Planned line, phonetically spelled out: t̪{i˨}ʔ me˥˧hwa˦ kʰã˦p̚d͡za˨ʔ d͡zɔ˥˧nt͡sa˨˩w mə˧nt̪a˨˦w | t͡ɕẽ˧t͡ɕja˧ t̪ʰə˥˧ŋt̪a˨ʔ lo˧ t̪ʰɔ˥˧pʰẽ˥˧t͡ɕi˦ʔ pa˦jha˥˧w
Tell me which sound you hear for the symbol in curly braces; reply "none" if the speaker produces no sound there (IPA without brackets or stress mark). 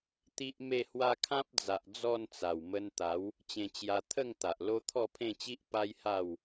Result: i˦